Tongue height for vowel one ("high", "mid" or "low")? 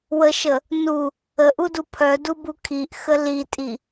mid